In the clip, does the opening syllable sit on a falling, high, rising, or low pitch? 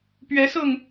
rising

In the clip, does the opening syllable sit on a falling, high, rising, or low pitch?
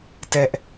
high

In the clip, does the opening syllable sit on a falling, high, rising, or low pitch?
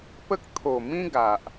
high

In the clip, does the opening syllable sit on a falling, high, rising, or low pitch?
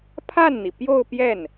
falling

